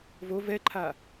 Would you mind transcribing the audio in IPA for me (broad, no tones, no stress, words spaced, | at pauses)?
vo vɛǃʰa